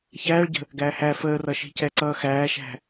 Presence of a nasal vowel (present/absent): absent